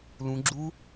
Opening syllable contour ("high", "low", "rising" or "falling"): rising